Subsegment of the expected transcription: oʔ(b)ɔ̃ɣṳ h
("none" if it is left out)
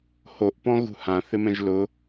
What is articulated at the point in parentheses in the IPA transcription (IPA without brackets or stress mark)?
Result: p